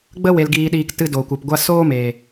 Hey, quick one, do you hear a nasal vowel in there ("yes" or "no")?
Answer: no